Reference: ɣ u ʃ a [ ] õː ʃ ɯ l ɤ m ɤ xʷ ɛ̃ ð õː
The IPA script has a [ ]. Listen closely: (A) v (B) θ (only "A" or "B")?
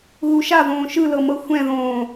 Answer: A